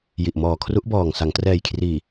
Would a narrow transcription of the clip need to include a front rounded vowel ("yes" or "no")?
no